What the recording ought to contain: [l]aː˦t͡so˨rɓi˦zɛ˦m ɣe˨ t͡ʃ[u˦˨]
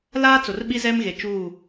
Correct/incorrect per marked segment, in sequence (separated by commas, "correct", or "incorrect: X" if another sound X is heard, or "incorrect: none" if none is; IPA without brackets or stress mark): correct, correct